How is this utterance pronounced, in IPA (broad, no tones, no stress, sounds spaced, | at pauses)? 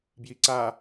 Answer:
b j i ǀ a